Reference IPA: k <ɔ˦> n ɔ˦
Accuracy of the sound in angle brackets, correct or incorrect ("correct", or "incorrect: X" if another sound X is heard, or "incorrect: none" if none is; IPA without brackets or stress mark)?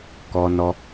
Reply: correct